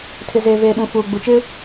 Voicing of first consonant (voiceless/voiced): voiceless